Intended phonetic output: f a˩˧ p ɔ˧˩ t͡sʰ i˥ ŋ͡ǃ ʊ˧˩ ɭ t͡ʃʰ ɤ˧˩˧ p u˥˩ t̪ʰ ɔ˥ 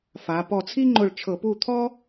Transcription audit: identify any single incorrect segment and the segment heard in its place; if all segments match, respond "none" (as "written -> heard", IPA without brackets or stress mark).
none